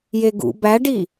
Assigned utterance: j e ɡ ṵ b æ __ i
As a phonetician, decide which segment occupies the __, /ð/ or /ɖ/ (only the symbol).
ɖ